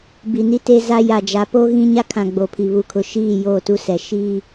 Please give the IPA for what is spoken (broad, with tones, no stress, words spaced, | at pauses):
bi˨ni˦te˦za˦ ja˨d͡ʒa˨˦ po˦ɣĩ˦ ɲa˦kʰã˨ ɡ͡bo˨pʰi˨ βu˨kʰʊ˨ ʃiː˦˨ joː˦˨tu˦ sɛ˨ ʃiː˦